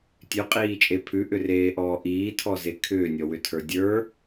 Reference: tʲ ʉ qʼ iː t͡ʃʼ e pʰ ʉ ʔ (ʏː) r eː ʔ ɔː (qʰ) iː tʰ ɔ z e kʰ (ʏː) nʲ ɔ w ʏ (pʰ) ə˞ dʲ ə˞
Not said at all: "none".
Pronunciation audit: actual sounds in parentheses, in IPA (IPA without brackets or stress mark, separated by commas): ʏ, ʔ, ʏː, tʰ